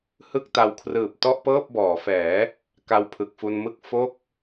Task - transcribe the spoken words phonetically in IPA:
h ɯ˥˩ k̚ t a˧ w kʰ r ɯː˨˩ p̚ t ɔ˥˩ ʔ p ɤː˥˩ p̚ b ɔː˩˦ f ɛː˩˦ | k a˧ w pʰ ɯ˨˩ k̚ f u˧ n m ɯ˥˩ k̚ f o˥˩ k̚

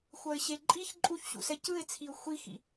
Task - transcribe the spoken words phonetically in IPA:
xʷ ʌ ɪ̯ ɕ e ǃʼ i ç ǃʼ u ç ɕ ṵ s ɛ c ɯ ɪ̯ t͡sʰ i ʊ̯ xʷ i x ḭ

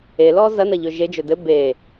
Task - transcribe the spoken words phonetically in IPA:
e l ɔ z ɐ n ɐ ʎ ɵ ʒ e d͡ʒ ɵ d ɘ b e

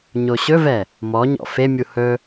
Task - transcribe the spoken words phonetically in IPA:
ɲ o ɕ ɵ v ɛ | m ɔ ɲ ɔ̰ f e mʲ u h ɵ

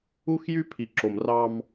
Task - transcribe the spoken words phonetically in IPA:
u˦ x j y˦ pʰ i˨ ǁ o˨ m r ɑ˦ m

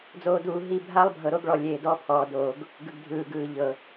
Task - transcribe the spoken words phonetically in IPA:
d͡z oː˨ d uː˨ ɦ i˦˨ bʱ a˦ lˠ bʱ ɤ˨ ɾ o˦ ɡ ɭ ɔ˨ lʲ eː˨ d ɔ˦ pʰ ɔː˨ d oː˨ ɡ | ɡ ɯ˨ ɡ dʱ ɯː˨ ɡ ɯː˨ ʎ ɤ˨

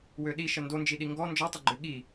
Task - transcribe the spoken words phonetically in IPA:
w ø ɗ i ʃ ə n d o n d͡ʒ i ɗ i ŋ ɡ ɔ n d͡ʒ ɔ tˤ ə ɡ͡ǃ ø ɠ i

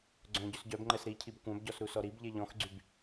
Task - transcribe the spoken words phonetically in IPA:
ɡ͡ǀ œ̃ ɟ ʉ s ɟ œ b ŋ͡ǃ ɛ s ɾ i cʰ i b kʷ œ̃ b ɟ ɔ s ɾ u s ɔ ɾ i b ʎ e ʎ ɔ̃ x ɡ͡ǀ y b

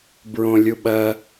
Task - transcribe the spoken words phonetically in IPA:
b ɹ õ lʲ u ɓ ɐ

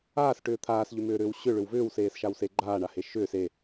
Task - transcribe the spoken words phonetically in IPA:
aː s ʈ ʏː t̪ʰ aː s ʎ ʏ m ʏː ɾ ʏː w ɕ ʏ ɭ ʏ w v ʏː w s eː s ʃ a w s e ɡ͡ǃ aː ɳ a h e ʃ ʏː s e

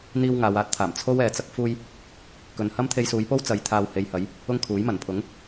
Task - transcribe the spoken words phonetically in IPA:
n̪ iː˥ w ŋ aː˨˧ w aː˧ t̚ t̪ʰ aː˨˩ m t͡sʰ o˥ w ɛː˨ t͡s ɐ˥ k̚ f uː˥ j | k ɵ˨ n h ɐ˥ m t̪ʰ e˧ j s uː˨˧ j p o˥ w t͡s ɐ˨˧ j t̪ʰ aː˧ w h e˨˧ j h ɐ˨˥ j | ʊ˥ ŋ kʰ uː˨˥ j m ɐ˨˩ n pʰ ʊ˨˥ ŋ

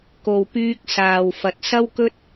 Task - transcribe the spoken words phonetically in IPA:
k o˨ w p yː˧ k̚ s aː˨ w f ɐ˨ t̚ s ɐ˥ w k ɵ˥ t̚

